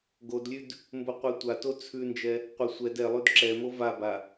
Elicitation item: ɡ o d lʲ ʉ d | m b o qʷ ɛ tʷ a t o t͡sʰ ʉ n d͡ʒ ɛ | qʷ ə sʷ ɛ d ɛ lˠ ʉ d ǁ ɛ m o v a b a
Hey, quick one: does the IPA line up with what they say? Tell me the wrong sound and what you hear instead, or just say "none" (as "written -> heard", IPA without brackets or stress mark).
none